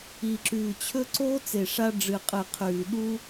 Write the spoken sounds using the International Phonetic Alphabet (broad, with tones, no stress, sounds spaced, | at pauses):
i˨˩ ǁ ʉː˨˩ t͡ɕʰ ɵ˦ ǀ oː˦ t͡s e˨˩ ʂ a˦ ɖ͡ʐ ɨ˨˩ qʼ ɨ˨˩ qʰ ʉː˨˩ ɗ u˦